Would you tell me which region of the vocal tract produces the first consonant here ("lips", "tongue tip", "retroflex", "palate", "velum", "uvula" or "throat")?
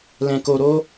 tongue tip